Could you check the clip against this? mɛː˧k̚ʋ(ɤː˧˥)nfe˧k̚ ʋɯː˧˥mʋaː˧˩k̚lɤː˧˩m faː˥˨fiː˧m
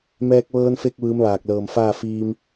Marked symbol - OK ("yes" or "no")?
no